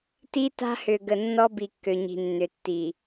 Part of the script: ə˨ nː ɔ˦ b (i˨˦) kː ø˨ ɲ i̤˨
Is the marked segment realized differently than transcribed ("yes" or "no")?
yes